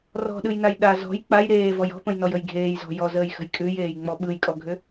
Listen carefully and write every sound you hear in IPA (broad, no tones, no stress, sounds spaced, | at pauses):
r ɔ̤ ɗ ɯ j n a j ɗ a z ɔ̤ j k͡p a j ɾ eː v ɔ j ɔ̤ p ə̃ j n ɔ j ə j ɡʱ eː j z ɔ̤ j ɔ z əː j x ə̤ j kʼ ʉ j eː j ŋ͡m ɔ ɓ ɯ j kʼ ɔ ɡʱ ʏ